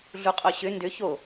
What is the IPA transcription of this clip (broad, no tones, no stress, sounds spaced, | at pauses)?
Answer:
ɮ u qʼ o ɕ ʏ n d ʏ ç o